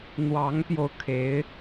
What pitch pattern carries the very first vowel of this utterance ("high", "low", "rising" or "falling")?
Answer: rising